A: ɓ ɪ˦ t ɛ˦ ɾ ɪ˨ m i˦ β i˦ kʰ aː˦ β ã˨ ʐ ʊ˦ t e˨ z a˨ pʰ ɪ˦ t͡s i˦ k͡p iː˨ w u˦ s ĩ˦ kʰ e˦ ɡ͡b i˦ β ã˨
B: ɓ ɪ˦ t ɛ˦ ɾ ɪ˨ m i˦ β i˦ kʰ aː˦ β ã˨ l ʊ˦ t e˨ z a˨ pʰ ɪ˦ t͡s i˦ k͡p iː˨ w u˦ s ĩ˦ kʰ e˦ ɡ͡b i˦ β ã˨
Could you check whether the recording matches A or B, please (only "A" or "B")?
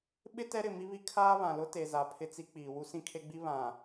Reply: B